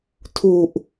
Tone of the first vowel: low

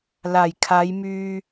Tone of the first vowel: low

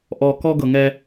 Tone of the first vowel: low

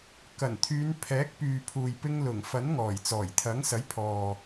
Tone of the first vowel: low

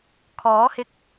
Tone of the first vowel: rising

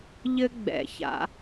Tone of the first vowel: high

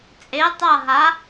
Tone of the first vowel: rising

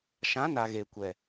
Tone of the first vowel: rising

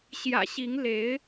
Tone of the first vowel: low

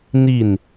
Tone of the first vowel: falling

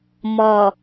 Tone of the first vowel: low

